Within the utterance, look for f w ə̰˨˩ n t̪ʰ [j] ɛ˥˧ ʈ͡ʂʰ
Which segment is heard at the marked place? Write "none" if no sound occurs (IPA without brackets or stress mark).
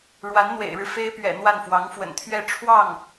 ɥ